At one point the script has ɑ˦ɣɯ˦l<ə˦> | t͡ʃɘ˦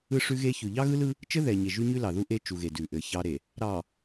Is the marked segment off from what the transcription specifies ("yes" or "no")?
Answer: yes